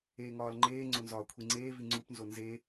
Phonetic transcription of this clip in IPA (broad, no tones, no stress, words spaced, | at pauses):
eːŋɒːlŋ͡ǃeːŋ͡ǀo nzɒːkʷʰiŋ͡ǀeːvi ŋ͡ǀupnzo nze